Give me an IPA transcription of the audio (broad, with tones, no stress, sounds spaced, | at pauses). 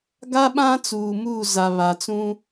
ɡ a˦ ɓ ã˦ t͡s uː˨ m uː˦˨ z a˨ β a˨ t͡s ũ˦